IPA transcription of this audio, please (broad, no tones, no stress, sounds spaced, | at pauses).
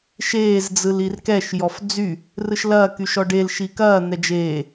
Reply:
ʃ eː z d͡z ɯ l i r k ɛ ʃ j ɔ f d͡z y | r ɯ ʃ l ɐː k y ʃ ɔ ɖ e l ʃ i k ɐː n̪ ɛ d͡ʒ eː